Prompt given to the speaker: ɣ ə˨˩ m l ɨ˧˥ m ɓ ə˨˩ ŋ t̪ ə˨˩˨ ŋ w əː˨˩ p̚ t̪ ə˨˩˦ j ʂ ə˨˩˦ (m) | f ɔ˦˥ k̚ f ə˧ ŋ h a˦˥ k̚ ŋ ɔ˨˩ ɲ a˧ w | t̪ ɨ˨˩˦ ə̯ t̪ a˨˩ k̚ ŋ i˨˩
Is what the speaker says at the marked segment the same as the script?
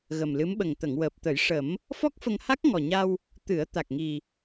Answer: yes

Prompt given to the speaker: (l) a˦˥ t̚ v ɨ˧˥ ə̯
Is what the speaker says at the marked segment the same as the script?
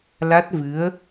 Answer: yes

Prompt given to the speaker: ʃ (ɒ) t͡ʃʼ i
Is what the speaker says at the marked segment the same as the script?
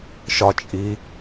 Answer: yes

